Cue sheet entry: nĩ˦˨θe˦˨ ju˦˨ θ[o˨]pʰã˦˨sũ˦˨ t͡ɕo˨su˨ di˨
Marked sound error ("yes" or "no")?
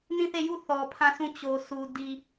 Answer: yes